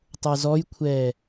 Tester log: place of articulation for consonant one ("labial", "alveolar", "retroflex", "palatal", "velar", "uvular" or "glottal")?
alveolar